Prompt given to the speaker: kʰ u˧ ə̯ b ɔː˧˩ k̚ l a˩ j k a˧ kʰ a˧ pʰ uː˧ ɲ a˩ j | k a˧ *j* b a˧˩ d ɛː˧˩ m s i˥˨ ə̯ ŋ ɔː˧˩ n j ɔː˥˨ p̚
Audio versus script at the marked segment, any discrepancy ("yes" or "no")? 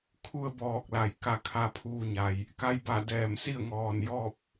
no